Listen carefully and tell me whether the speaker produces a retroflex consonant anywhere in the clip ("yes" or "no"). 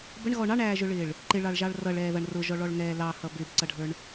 yes